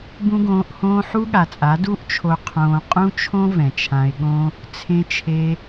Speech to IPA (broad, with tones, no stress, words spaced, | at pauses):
bũ˦ɡõː˧ʔhõː˦ ħu˦ɠa˨t͡sʼa˨˦ du˦ʔt͡ʃʰo˧ qʰõː˧ qʼũ˦t͡ʃʰõ˦ vɛ̃˨t͡ʃʰã˧ɪ̯ɠõ˦ | t͡sʰẽ˧t͡ʃʰe˧